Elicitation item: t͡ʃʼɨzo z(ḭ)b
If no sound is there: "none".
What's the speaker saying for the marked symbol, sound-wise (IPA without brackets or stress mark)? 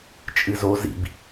ḭ